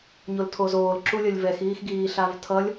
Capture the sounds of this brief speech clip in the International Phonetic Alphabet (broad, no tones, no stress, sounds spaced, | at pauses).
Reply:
ɲ o l tʰ o z oː l ǁ u lʲ ʌ lʲ v ɛ x iː x ɡ iː ɬ a v tʰ ʌ lʲ